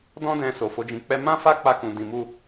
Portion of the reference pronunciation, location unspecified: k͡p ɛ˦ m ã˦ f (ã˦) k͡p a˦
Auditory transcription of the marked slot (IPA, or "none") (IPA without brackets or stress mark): a˦